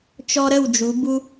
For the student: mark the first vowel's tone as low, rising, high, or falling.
high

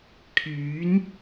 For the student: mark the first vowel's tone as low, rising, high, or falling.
rising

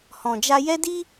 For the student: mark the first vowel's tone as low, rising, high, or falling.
low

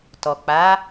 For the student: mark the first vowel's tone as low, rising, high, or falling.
low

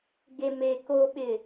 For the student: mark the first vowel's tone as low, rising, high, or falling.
low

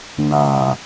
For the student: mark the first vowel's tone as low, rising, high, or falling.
low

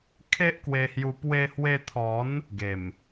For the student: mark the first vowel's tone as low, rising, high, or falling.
high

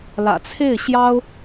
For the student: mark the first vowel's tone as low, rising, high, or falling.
low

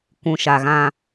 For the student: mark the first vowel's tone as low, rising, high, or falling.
low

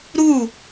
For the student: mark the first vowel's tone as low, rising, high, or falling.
falling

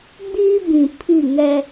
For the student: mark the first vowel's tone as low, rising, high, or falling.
high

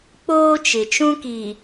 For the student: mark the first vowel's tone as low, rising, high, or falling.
high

